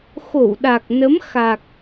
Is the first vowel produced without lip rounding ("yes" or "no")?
no